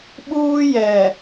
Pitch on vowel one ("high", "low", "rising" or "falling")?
high